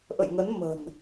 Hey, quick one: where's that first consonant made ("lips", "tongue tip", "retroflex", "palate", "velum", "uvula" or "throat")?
throat